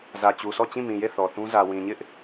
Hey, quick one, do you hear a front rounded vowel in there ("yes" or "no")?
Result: no